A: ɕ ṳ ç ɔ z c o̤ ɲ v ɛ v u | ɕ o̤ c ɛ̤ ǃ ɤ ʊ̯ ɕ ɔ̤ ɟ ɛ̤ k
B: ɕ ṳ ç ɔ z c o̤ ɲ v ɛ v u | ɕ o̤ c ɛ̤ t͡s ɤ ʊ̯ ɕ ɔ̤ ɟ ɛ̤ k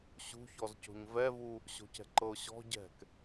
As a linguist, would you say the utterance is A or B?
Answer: A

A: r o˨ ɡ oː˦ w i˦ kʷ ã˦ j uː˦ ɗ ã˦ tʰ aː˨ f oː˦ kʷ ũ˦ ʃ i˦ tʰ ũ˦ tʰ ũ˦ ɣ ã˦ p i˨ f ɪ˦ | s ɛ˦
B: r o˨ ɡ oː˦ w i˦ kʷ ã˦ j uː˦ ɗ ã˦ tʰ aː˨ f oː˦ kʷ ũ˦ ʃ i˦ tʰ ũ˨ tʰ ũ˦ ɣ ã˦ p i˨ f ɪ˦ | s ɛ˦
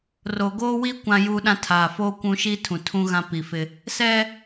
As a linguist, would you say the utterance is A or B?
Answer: B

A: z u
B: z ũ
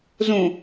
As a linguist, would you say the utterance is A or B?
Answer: B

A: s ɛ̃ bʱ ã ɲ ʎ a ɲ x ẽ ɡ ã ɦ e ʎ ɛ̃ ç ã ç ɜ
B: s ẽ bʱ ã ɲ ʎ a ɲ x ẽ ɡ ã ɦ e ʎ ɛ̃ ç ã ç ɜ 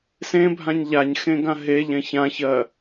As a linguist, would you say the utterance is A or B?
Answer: B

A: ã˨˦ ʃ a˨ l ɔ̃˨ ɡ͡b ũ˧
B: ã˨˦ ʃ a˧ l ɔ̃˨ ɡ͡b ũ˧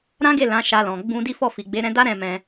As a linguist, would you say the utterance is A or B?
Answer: B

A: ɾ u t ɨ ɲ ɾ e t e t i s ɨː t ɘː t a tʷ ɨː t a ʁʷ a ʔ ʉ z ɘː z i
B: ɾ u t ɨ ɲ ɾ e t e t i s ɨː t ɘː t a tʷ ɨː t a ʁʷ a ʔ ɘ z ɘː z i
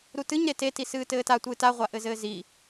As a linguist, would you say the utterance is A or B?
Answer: B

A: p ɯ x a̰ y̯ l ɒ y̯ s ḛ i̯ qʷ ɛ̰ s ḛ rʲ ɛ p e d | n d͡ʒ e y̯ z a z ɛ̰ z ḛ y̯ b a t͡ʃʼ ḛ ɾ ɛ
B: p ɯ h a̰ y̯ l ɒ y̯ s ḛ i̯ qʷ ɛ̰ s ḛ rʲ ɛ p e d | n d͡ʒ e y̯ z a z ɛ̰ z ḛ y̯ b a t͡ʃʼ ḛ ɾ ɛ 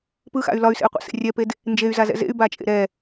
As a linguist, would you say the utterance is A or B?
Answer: A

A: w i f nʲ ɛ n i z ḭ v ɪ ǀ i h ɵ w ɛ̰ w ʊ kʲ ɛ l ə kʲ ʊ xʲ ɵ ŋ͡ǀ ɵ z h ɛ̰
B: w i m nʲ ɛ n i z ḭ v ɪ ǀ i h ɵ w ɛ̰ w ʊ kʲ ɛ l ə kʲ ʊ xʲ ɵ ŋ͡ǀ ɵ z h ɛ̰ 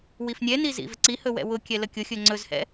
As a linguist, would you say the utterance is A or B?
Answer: A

